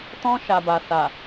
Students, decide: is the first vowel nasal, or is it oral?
nasal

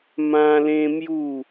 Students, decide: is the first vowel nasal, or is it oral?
nasal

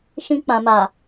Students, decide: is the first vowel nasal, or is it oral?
nasal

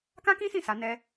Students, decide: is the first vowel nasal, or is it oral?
nasal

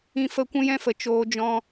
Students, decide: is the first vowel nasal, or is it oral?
nasal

